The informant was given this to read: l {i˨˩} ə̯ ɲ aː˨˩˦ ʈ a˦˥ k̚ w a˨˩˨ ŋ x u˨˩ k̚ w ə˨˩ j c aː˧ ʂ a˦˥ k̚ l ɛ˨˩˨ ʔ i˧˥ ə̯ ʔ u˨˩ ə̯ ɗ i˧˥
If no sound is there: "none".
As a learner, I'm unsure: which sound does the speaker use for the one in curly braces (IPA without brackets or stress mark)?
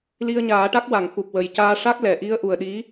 i˧